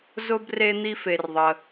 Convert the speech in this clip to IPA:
z ʊ˧ b r e˧ n̪ i˧ f e˩ r ðˤ ə˩

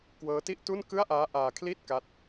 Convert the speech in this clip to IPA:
k w ɤː˦˥ t i˥˩ ʔ t u˥˩ n k ɯ˥˩ a̯ ʔ aː˦˥ ʔ aː˧ kʰ l i˥˩ t̚ k a˥˩ t̚

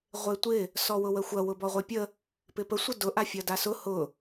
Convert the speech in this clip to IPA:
ʁʷ e tʷ ɪ | s ɔ w ʊ w ə xʷ ɐ w ʊ b ɔ ʁʷ e pʲ ə | p ɪ p ə sʷ ə d ʊ ʔ a fʲ ɐ d a s ʊ h ʊ

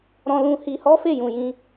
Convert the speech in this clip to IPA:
ɾ ɔ̃˧ l ũ˧ h i˧ h ɔ˦ f e˦˨ j ũ˨ j ĩ˧

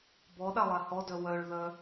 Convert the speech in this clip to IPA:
b ɔ ɗ a lˠ a h ɔ d œ w œ ɭ ð œ

